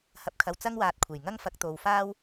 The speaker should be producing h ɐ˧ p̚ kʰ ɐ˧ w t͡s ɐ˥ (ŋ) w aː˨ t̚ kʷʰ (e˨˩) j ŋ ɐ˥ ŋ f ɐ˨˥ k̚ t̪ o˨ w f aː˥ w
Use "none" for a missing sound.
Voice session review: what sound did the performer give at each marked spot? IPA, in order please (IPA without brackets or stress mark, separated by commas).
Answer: ŋ, e˨˩